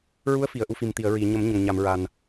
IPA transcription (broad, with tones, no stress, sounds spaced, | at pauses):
ɹ u˧˥ ə̯ f i˨˩˨ ə̯ ʔ u˧ f i˨˩ m t̪ i˨˩˨ ə̯ ɹ i˨˩˨ ɲ ə˨˩˦ m ɲ ə˨˩ ŋ ɲ a˨˩˨ m ɹ a˨˩ n